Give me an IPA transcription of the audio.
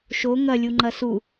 ʃ o ŋ ɐ lʲ u ŋ͡ǃ ɐ s u

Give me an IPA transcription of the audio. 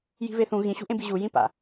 j i̤ v e θ ũ ɣ ĩ ɕ ṳ ʔ ẽ b i ʑ u j ĩ p a̰

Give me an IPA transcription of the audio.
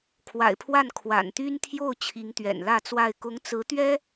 kʰ w a̰˨˩ ɪ̯ pʰ w a˥˩ n kʰ w a̰˨˩ n t̪ y˥ n t̪ʰ j o˥˩ ʊ̯ t͡ɕʰ i˧˥ ŋ t̪ ɥ ɛ̰˨˩ n l ä˥˧ t͡s w a˥˩ ɪ̯ k ʊ˧˥ ŋ t͡s ɹ̩˧˥ t̪ ɥ ɛ˥

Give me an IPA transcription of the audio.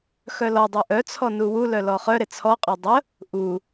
x œ l ɔ dˤ ʏ ʔ œ t͡sʰ ɔ n u w u l œ l ɔ χ œ ɾ e t͡sʰ ɔ qʼ œ dˤ ə | ʔ u

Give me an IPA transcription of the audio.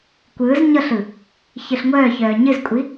kʷ ɯː z ɲ ɤ ɬ ɯ | ç ɯ ɬ ŋʷ œː ç œː ɲ ɨ z kʷʼ i

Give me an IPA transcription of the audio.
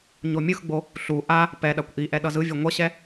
ɲ o mʲ ɯ x ɡ͡b o | ɬ u ʔ a | p ɛ ɗ a kʷ ʔ i ʔ ɛ ɗ ʌ z ɯ vʲ e ŋʷ ʌ ɕ ɛ

